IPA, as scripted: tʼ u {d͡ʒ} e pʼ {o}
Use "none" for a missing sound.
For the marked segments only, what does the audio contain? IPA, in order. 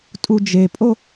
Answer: d͡ʒ, o

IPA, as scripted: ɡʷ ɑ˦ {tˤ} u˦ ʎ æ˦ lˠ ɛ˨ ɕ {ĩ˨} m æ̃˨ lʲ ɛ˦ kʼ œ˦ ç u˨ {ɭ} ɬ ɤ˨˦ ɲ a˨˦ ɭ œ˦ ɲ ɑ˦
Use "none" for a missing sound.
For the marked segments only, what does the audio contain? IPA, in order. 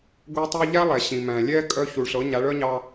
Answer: tˤ, ĩ˨, ɭ

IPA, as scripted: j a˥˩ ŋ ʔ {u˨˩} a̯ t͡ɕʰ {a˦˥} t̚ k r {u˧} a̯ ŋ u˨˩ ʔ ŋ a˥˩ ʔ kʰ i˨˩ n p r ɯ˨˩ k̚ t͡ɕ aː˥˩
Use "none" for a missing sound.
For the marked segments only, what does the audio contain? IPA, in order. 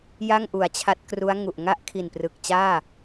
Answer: u˩˦, a˦˥, u˦˥

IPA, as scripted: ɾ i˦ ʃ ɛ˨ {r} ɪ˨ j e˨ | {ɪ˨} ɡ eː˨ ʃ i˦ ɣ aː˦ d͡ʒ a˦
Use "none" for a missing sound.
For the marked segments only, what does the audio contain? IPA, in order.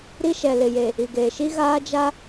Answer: l, i˨

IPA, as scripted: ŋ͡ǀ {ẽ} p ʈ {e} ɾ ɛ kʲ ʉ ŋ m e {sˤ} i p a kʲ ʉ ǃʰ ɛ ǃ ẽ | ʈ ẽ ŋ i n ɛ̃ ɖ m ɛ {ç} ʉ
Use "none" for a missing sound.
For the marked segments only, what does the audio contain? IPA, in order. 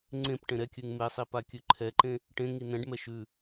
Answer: ẽ, ẽ, sˤ, ʃ

